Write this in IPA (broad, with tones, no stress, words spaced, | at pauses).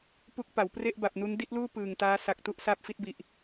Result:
pu˦˥k̚pa˩˦w pre˥˩ʔba˨˩p̚nu˦˥n di˥˩t̚luː˥˩ pɯː˨˩ŋtaː˦˥ sa˨˩k̚ tu˥˩ʔsaː˦˥p̚fi˦˥t̚bi˨˩ʔ